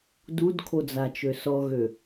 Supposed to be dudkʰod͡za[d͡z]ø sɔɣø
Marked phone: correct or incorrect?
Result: incorrect